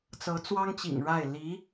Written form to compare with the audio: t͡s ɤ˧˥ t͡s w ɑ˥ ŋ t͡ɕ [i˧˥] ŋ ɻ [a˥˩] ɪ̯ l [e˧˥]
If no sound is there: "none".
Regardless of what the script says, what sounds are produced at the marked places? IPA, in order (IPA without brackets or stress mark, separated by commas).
ḭ˨˩, a˥˩, i˧˥